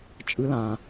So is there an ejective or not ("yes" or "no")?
yes